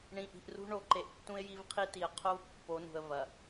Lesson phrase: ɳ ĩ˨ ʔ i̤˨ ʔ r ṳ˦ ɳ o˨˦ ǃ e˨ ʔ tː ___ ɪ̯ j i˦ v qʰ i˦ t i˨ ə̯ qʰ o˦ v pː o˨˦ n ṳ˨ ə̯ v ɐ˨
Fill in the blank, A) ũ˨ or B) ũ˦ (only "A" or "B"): B